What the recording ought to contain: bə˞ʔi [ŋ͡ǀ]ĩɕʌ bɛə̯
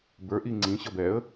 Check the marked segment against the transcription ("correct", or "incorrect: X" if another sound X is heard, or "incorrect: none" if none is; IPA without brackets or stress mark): correct